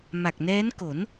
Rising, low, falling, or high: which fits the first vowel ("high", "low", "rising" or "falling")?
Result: low